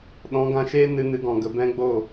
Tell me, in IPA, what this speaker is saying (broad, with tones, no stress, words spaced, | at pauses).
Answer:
ɗɔ̃˨˦ɡã˧ʃeː˦ nɨ˧nɨ˨˦ɡɔ̃˨ɡə˨ bɛ̃˦ɡ͡bo˦˨